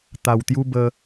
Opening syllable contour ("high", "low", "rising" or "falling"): low